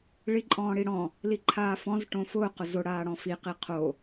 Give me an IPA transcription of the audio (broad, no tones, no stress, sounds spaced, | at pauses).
ɭ i ǃʼ ɔ̃ː ɽ i ɽ ɔ̃ | l i ǃʰ aː f ɔ̃ z ʈ õ f ʊː q ʊ z ʊ ɽ aː ɽ ɔ̃ f i q i qʰ o